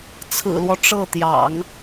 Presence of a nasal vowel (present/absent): absent